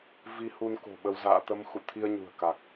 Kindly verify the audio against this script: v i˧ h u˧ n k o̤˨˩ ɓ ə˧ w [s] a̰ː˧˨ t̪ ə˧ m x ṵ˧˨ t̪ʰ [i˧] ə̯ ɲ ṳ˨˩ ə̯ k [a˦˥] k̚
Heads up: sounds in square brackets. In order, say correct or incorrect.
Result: incorrect: z, correct, incorrect: a˨˩

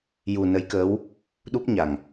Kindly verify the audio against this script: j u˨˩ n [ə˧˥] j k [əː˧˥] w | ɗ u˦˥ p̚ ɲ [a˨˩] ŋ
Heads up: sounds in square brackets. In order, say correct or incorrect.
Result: correct, correct, correct

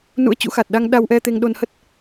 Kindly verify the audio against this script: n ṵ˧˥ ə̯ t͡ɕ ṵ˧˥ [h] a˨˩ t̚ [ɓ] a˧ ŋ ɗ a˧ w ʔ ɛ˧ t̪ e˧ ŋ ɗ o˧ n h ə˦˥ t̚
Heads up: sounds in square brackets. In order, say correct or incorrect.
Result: incorrect: x, incorrect: ɗ

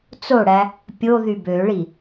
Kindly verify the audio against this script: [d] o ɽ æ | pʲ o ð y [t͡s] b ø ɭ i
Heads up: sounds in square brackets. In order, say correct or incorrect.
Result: incorrect: t͡s, incorrect: none

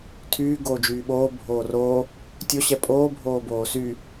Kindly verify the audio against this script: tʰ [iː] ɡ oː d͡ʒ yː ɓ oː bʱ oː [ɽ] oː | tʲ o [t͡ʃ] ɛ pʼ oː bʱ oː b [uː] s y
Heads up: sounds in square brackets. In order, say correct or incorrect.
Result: incorrect: yː, incorrect: r, incorrect: ɕ, incorrect: oː

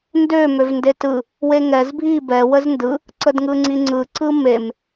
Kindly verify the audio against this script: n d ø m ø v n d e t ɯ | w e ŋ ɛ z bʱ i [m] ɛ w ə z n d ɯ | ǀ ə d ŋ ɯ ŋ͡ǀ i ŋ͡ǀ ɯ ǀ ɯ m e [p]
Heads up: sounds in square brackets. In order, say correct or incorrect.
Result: incorrect: b, incorrect: m

